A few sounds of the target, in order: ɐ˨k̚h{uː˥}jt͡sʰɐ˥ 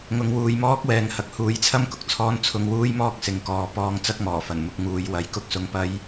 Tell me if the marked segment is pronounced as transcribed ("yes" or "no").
no